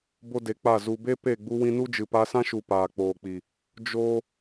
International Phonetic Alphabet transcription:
b o˦ d e˨˦ k͡p a˦˨ z u˨ b e˦ p e˦˨ ɡ͡b u˧ w ĩ˧ n u˦ d͡ʒ ɨ˨ p a˧ s ã˦ ʃ u˨ p aː˨ k͡p oː˨ k͡p i˨ | d͡ʒ oː˦

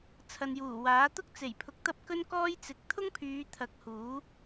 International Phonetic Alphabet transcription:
t͡sʰ ɐ˨ n j uː˨˩ w aː˨˥ t̪ ʊ˥ k̚ t͡s e˨˩ j pʰ ʊ˨ k̚ t̪ ɐ˥ p̚ k ɵ˥ n k ɔː˥ j t͡s ɪ˨ k̚ t̪ʰ ʊ˥ ŋ pʰ yː˨˧ t̪ʰ ɐ˨˥ k̚ h uː˨˥

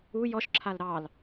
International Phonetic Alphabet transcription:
u j ɔ ʃ ǁʰ a l ɾ ɑ l

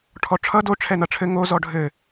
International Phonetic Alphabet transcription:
ʈʰ ɔ ʈ͡ʂʰ ʌ d o ʈ͡ʂʰ ɛ n ʌ ʈ͡ʂʰ ɘ ŋ o z ɔ ɖʱ ɘ

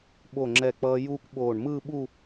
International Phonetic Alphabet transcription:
ɓ o˧˩ ŋ͡ǁ ɛ˧˩ k͡p ʌː˧ j uː˥ kʷ ɓ oː˧˩ ɳ m ɯː˥˧ ɓ u˥˧

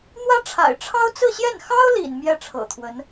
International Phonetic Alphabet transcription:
n̪ w ä˥ ʈ͡ʂʰ a̰˨˩ ɪ̯ ʈ͡ʂʰ ɑ˥ ʊ̯ t͡s ɹ̩˥˧ ɕ j ɛ˥˩ n x ɑ˥ ʊ̯ l ḭ˨˩ n m j ɛ˥˩ ʈ͡ʂʰ ɤ̰˨˩ t̪ʰ w ə˧˥ n

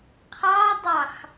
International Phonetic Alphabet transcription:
qʰ ɑ dˤ ɑ x

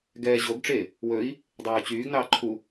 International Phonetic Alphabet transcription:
ɡ ɛː ʑ o ɡ ʈ͡ʂ e | w ɵ i̯ | dˤ ɛː u̯ t͡ɕ yː ɡ n ɑː ǃʰ u

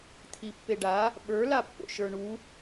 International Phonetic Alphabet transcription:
t̪ʰ i pː e ɖ a | ɓ ə˞ l a pː o̰ ʃ ə˞ ɳ u

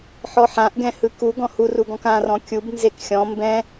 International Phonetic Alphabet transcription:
ħ ɔ ħ ã ʔ ɡ ɛ̃ h ɯ k u ɡ ɔ̃ h u r u ɡ ɔ̃ k ã r ɔ̃ kʲ u b n z e k xʲ ɔ̃ m b ɛ̃

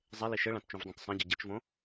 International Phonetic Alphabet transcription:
zˤ e l i ʃ ɘ ɭ ã t t͡ʃ ũ v dˤ ũ t sˤ ã ɟ ɨ ɟ ɨ t͡ʃ v õ

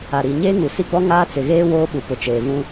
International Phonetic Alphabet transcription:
a˨ ɾ i˨ ɲ eː˦ ŋ u˨ s i˦ ɡ͡b ɔ˦ ŋ aː˦ t͡s ɪ˨ ɣ eː˦ w oː˦ ɓ u˨ p ʊ˨ t͡ʃ eː˨ β ũ˦

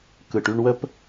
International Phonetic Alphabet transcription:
k ɯ˨ ʈ y˧ ɳ w ə˦ p

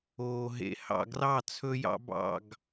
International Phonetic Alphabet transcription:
oː˨ ɦ ḛ˨ h ɑ̰˨ ɡ r ɑ˦˨ t͡sʰ ɵ˦ j ɑ̰˦ b ɑ̰˦˨ ɡ

